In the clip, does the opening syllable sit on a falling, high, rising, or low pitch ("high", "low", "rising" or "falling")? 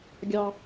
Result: high